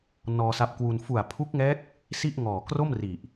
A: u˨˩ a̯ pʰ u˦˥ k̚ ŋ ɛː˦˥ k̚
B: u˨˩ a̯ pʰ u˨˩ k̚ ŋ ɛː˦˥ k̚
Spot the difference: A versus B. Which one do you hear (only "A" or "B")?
A